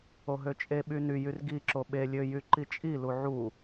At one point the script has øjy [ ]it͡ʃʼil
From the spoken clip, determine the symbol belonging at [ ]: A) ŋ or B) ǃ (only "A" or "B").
B